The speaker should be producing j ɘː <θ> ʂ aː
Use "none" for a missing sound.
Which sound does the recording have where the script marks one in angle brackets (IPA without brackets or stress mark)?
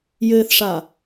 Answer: θ